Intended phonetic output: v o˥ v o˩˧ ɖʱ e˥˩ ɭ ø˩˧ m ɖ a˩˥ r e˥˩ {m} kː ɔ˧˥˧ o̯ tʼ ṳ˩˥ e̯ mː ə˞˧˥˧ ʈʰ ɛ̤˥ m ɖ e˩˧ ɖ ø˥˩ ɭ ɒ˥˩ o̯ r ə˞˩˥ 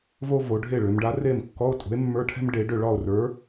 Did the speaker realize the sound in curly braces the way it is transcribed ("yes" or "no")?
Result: yes